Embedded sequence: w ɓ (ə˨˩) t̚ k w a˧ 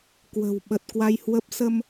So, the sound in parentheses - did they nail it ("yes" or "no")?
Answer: yes